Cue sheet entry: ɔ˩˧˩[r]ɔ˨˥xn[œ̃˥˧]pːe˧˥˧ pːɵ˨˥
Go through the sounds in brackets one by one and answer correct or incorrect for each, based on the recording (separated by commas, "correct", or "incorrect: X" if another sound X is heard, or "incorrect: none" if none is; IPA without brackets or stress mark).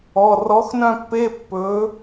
correct, correct